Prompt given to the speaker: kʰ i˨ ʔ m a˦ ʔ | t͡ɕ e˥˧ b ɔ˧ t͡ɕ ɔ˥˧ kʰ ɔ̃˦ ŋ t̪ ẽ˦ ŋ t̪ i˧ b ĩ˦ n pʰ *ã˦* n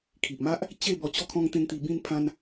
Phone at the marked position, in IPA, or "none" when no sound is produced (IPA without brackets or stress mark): ã˦